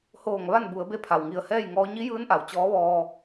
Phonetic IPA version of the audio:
h oː˧˩ ŋ ʋ a˥˨ n b u˩˧ ə̯ b e˧˥ pʰ a˩ w ŋ i˧˩ ə̯ h ɛː˥˨ j ŋ ɔː˧˥ ɲ i˧˥ j ɯː˧˥ n ʔ a˩ w t͡ɕ ɔː˧˥ ʋ ɔː˧

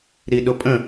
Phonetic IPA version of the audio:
ɾ i ɗ ʊ pʼ ə̃

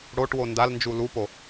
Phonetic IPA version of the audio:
ɽ o ʈ w o n d a l n d͡ʒ u l u p o

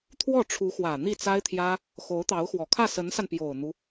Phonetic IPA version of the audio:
t̪ʰ w ɔ˥˩ ʈ͡ʂʰ u˧˥ x w ä˨˩ n̪ i˥˩ t͡s a˥ ɪ̯ t̪ʰ j ä˥ | x o˧˥ ʊ̯ t̪ ɑ˧˥ ʊ̯ x w ɔ˨˩ kʰ ä˥˩ s ə˧˥ n s a˧ n p j o˨˩ ʊ̯ n̪ u˦

